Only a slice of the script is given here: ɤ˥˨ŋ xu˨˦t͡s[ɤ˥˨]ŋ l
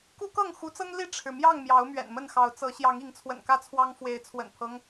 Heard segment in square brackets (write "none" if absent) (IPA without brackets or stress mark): ɤ˦